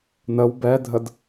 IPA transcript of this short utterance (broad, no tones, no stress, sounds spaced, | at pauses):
n ə w b ɛ dʱ ə d